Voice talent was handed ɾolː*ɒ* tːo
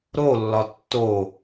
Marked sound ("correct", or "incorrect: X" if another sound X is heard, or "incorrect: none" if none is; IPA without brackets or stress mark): correct